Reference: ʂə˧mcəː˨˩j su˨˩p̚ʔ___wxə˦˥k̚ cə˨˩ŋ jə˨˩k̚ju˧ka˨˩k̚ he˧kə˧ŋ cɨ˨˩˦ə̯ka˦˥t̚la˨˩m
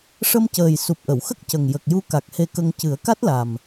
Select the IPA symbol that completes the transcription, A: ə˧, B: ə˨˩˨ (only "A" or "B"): B